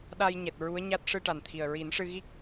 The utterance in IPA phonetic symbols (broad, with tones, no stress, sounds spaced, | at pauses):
ɗ a˧ j ɲ ɛ˨˩ t̚ ɹ u˧˥ ə̯ ɲ a˦˥ t̚ ʂ ɨ˧ ʈ a˨˩ n t̪ʰ i˨˩ ə̯ ɹ i˨˩˦ n ʂ ɨ˧ ɣ i˦˥ k̚